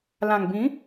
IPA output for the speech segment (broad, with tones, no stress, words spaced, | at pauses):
lã˨˩ŋbĩ˨˦